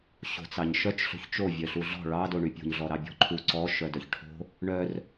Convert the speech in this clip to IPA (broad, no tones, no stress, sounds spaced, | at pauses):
ɕ o̤ t͡s ɑ ɲ ʃ œ t͡ʃ ɬ o̤ ç t͡ʃ o vʲ œ ɬ u ɮ ɔ̤ ɭ ɑ d o ɳ y pʲ o̤ ɲ ɮ ɔ ɾ ɑ bʲ ɔ̤ ǃʰ u ǀ ɔ ʃ œ d œ ç ʈʰ o̤ | ɳ œ r